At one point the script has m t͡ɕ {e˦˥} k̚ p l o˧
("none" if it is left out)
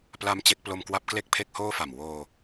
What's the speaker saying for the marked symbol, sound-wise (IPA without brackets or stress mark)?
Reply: e˦˥